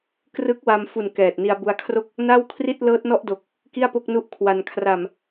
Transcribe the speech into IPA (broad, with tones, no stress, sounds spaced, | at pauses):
k r ɯ˦˥ k̚ w a˧ m f u˨˩ n k ɛː˨˩ t̚ n i˧ a̯ b u˧ a̯ kʰ r o˥˩ k̚ | n a˥˩ w kʰ r i˥˩ t̚ l ɤː˦˥ t̚ n ɔ˥˩ ʔ d o˨˩ k̚ | k i˥˩ a̯ p o˥˩ k̚ n u˦˥ ʔ kʰ w a˧ n kʰ r a˨˩ m